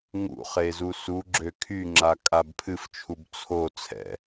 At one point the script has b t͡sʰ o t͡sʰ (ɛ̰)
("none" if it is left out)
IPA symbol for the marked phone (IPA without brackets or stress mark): ɛ̰